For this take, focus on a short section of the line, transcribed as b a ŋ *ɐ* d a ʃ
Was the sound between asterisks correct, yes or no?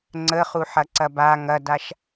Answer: yes